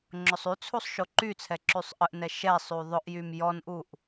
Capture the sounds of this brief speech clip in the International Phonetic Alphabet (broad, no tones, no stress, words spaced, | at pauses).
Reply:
ŋ͡ǁʊsˤyt͡sʰusˤ ʃoǃyt͡sʰɛ ǁysˤʔəʔnɛ ʃɛ sˤyðˤʊʔjym jɔnʔuʔ